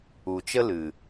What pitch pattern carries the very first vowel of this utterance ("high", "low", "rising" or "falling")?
low